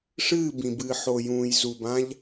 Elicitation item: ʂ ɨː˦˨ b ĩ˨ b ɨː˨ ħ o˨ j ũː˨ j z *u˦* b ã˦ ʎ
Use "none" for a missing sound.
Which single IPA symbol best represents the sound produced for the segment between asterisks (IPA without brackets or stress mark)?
u˨